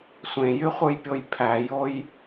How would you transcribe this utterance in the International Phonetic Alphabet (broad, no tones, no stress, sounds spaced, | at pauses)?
sʷ ẽ j y χʷ ɯ j pʲ o j pʰ æ j o j